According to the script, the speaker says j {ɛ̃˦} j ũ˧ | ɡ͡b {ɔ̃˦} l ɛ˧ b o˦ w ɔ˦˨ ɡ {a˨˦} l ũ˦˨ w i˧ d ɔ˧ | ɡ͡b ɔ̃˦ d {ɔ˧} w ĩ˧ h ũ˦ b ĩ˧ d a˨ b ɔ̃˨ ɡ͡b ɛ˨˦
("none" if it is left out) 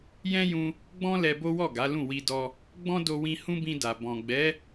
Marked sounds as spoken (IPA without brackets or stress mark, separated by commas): ɛ̃˦, ɔ̃˦, a˨˦, o˧